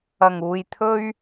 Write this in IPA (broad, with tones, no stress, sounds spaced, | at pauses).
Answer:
ɐ˨˩ ŋ uː˨ j t̪ʰ ɵ˥ ɥ